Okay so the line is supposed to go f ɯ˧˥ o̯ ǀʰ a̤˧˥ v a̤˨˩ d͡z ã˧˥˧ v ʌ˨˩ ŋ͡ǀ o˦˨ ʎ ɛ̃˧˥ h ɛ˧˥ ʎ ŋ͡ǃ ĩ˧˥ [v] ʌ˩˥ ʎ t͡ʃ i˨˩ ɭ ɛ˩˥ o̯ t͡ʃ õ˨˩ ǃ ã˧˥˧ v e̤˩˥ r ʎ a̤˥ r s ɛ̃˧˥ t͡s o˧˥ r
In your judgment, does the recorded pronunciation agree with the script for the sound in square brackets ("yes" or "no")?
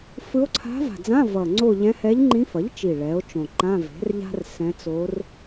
no